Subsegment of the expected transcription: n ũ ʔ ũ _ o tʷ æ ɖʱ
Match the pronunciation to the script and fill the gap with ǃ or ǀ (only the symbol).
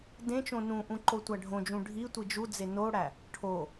ǃ